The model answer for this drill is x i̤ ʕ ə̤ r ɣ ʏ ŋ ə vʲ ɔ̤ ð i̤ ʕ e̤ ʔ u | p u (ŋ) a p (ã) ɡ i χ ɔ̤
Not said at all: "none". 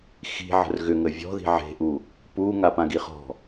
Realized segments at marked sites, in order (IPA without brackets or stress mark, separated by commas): ŋ, ã